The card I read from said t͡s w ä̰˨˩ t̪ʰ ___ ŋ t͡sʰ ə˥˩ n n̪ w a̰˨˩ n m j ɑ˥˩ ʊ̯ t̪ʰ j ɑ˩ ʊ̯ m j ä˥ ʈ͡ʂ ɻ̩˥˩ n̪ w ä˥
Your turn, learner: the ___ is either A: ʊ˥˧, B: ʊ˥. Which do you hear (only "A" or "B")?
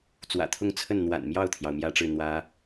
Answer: A